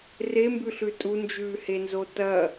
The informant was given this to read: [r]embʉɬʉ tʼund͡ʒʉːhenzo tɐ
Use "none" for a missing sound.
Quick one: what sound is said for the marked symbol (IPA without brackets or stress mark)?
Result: r